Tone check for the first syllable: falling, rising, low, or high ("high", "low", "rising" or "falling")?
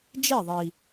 falling